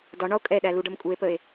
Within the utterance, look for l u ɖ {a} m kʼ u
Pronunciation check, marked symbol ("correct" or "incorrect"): incorrect